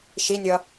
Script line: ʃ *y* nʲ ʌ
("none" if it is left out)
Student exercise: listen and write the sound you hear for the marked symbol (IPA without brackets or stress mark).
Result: i